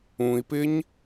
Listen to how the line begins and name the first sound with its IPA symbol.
ũ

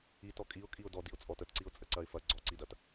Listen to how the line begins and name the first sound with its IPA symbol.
i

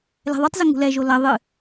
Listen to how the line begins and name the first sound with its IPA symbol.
l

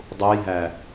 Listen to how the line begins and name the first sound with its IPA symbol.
dˤ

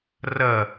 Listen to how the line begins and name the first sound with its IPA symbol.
r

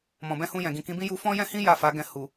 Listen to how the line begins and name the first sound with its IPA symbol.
m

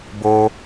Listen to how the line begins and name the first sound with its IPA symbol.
b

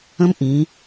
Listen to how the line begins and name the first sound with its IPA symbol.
ə̃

